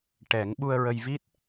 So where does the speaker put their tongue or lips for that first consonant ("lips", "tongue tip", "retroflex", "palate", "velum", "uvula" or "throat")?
retroflex